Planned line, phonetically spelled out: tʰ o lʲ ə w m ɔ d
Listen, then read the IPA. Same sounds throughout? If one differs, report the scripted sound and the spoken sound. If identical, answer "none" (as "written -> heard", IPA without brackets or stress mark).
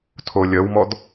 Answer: none